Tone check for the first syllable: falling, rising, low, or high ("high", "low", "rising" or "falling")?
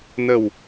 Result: low